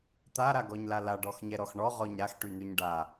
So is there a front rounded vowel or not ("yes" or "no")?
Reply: yes